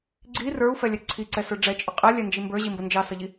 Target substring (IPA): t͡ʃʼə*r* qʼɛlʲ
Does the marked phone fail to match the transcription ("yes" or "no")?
yes